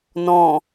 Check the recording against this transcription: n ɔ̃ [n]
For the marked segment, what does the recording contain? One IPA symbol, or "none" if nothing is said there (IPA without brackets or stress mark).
none